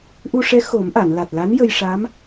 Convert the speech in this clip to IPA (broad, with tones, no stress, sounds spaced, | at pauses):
ʔ u˧ ʂ ɛ˧˥ x o˨˩˦ m ʔ a˨˩˨ n l a˨˩ t̚ l a˧˥ n j ə˧ j ʂ a˧˥ m